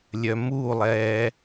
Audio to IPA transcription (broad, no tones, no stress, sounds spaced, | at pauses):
lʲ œ m u lˠ ɛː